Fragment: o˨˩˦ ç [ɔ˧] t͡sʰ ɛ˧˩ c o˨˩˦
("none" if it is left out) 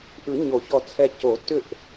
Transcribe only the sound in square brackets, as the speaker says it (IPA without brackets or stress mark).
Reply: ɔ˧˩